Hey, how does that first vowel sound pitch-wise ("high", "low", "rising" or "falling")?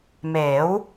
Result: rising